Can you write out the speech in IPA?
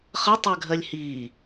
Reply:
χʌtˤɜɡʱɜlʲ hiː

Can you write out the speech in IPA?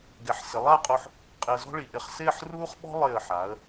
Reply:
ɡɛ˩˧ħsɪ˩˧lˠa˥˧qʼo˧ħ | qʼɪ˧ə̯zɔ̤˥ɭi˩˧ ʔɪ˧χ sɪː˥˧ħruː˥χɓɔ̤˥ lˠɪː˧˩ə̯ħa˩˧ə̯

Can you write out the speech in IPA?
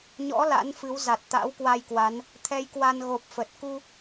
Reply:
ɲɔ̰˧˥ la̰˧˥nfɨ˨˦w za˨˩t̚t̪a̰˧˥wkwa˧jkwa˨˦n | t̪ʰɛ˧jkwa˧n ɣo˨˩p̚fə˨˩t̚ ku˧

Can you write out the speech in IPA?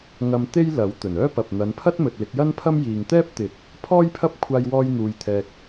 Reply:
ŋɐ˧m t̪e˥jlɐ˨˥w t̪ɵ˨˩n œː˥pɐ˨p̚ n̪ɐ˨˧npʰɐ˥t̚ mɵ˨t̚lɪ˨˥k̚jɐ˥npʰɐ˥m jiː˨ŋt̪ɛː˥p̚t̪ɪ˨˥k̚ | pʰɔː˥jpʰɐ˥p̚ kʷʰaː˥jwɔː˥jn̪uː˧jt̪ʰɛː˧k̚

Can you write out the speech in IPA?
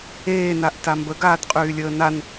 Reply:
eːnaʔta mbəɡaːtqʼyːlʲəː nan

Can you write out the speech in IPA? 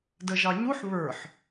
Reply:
dəʒɑɲuħ βə˞ħ

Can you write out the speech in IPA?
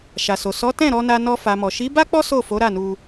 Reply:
ʃa˨so˨ sɔ˨˦tɛ̃˦˨ ɾɔ˧na˧ nɔ˧ fa˨mɔ˨ ʃi˨˦ba˦ k͡pɔ˦ so˦˨fo˨˦ ɾa˦˨nu˧

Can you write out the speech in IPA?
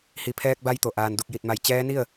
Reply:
hi˩˧pʰɛː˧k̚ba˧jt̪o˩ ʔaː˩n du˧˩k̚ji˧˩t̚ma˧˩j t͡ɕɛː˧˥ni˥˨ə̯

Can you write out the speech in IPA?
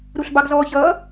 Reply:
ɾuɬbɑɡzɔːçʌː

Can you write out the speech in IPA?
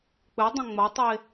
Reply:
k͡pɘdˤɐ̃ ŋ͡mɐtˤe

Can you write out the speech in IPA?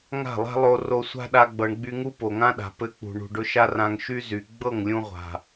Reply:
ŋa̤˦˨lˠa̤˦lˠo˧ ro˧sʷa̤˦ɗa˧ ɡ͡bɤ˧ɳɡ͡by˦ ŋu˦po˨ŋã˦ɗa̤˨ pɘ˧k͡pṳ˨ ɳṳ˨ɖʊ˧ʃa˦rã˧ŋ ʃy˦zy˨ ɡ͡bɤ˦˨ŋlʲũ˧ʁʷa̤˨

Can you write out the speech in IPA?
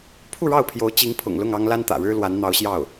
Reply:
pʰu˥˧ɻɑ˥˩ʊ̯pʰjo˧˥ʊ̯ t͡ɕi˧˥ŋpʰʊ̰˨˩ŋlʊ˥˩ŋ ɑ˥ŋla˥nt̪ä̰˨˩ɻɻ̩˥ lwa˧˥nn̪ɑ˧˥ʊ̯ɕjɑ˥˩ʊ̯

